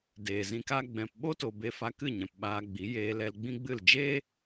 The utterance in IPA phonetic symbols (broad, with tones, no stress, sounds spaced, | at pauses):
d eː˨ z ĩ˧ k a˦ ɡ͡b ɛ̃˨ p ɓ o˦ t o˨ b e˧ f a˧ k ɨ˦˨ ɲ ɛ̃˨ p ɓ aː˧ ɡ͡b i˨˦ j eː˧ l ɛ˧ l ɡ͡b ĩ˦ ɡ͡b ɨ˦˨ l d͡ʒ eː˦